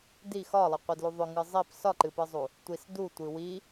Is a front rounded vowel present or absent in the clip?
present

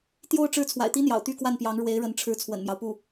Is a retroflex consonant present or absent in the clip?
present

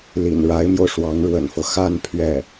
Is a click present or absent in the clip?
absent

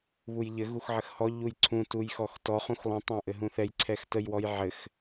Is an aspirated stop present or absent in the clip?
present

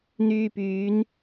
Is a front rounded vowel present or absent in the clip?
present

